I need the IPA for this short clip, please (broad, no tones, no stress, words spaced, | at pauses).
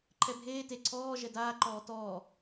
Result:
ǃʰɛbʱeː te ǀʰɔː ʒɛdaːǃɔː tɔː